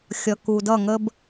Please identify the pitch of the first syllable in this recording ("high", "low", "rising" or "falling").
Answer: low